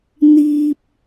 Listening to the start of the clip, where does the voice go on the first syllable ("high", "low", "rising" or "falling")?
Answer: low